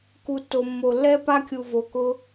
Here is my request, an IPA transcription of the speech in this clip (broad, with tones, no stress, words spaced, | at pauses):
ku˧tːo˧ mːo˧lːɛ˥pa˥kʲu˧ vo˧kʊ˥